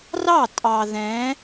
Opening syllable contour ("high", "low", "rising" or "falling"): falling